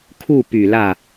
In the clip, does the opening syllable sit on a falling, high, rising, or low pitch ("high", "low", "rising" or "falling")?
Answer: falling